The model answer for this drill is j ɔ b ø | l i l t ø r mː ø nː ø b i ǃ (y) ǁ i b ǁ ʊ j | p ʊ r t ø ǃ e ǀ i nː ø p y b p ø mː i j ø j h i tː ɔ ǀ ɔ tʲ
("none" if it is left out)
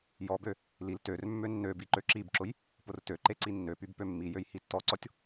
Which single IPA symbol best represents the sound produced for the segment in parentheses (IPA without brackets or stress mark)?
ø